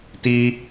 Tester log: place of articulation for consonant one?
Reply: alveolar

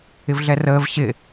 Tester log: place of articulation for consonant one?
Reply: labial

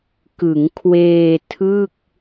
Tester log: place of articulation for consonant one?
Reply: velar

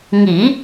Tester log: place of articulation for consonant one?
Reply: velar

